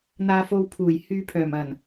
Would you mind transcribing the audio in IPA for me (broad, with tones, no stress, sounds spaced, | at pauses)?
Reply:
n̪ aː˨ f o˨ w pʰ uː˨˩ j h yː˧ pʰ œː˨˩ m ɐ˨˩ n